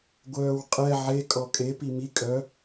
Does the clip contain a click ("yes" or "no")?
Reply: no